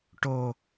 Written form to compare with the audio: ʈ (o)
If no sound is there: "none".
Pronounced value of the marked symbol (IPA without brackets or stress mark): o